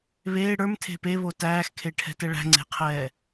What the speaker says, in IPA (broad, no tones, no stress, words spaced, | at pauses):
βeː ɽə˞mtʰe̤ peβo tæːxkʰeʈʰɛ̤tɛ ɭæ̤ŋ͡ǀe̤qʰɛː